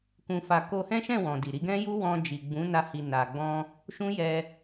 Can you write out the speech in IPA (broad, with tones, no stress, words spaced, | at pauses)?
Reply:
kũ˧fa˧ ko˧hɛ̃˦ʃɛ̃˦˨wɔ̃˨ di˨ɾi˧ɡɛ̃˦ju˦ wɔ̃˧ d͡ʒi˨ɡ͡bũ˨˦na˧hi˨ na˨ɡ͡bɔ̃˧ | ʃũ˦jɛ˧